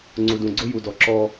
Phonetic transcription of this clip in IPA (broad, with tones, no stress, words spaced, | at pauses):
ŋ͡ǀu˨dũ˨ɡ͡ǀʊ˦ ju˨dɔ˨ ǁɔ˦